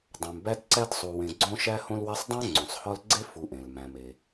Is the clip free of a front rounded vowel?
yes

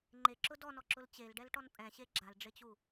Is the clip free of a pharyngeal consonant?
yes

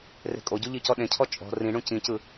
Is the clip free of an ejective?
no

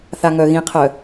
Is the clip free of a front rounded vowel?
no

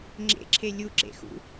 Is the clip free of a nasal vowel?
yes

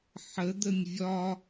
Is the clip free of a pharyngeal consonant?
no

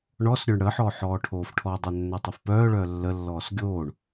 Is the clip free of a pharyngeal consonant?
no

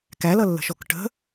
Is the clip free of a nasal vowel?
yes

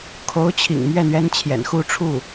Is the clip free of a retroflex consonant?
no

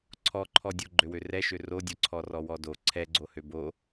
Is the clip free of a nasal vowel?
yes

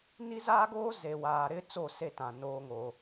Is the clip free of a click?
yes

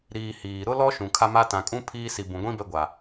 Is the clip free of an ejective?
no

